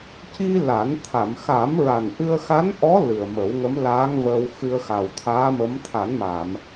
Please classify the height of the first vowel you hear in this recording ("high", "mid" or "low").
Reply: high